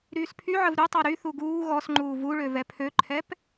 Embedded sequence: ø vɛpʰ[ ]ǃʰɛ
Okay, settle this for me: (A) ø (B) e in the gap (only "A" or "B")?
A